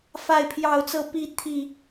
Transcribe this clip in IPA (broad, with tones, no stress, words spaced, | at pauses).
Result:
fa˥˨ɪ̯pʰjɑ˥˨ʊ̯t͡sɤ˥˨ pi˥˨ t̪ʰi˨˩